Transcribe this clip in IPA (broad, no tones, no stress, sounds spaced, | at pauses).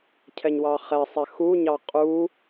cʰ ɛ ɲ w ɑ χ ɛ sˤ ɛ x u ɲ ɑ qʼ u